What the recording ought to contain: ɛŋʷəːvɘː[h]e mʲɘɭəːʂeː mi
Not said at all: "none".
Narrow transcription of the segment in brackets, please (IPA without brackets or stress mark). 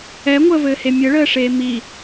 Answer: h